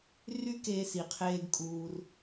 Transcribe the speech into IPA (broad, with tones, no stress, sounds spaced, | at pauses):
r y˦ k eː˧ s i˨ qʰ eː˧ ɡ kʼ uː˧ r